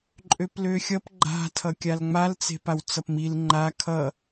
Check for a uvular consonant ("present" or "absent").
absent